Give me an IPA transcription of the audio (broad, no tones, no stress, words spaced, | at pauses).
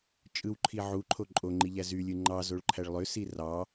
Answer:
t͡ʃʼɯwǃʰi ʕuǃʰo ǃʼoŋ͡ǃiʎæ zylʲɯ ŋ͡ǃɑzoɭǃʰæɭ lˠøsi rɑ